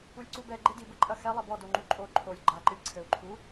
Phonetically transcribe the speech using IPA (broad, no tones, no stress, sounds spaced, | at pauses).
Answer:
u lʲ ǀ u b ɛ ɡ͡ǃ e d i b ɘ ǃʼ ɐ x ɛ lˠ ɛ b ɔ d o ŋ͡ǃ u ǃʼ o ǃʰ o lʲ ɡ͡ǃ a ǃ ɨ lʲ ǀʰ ɘ u̯ ǃʰ u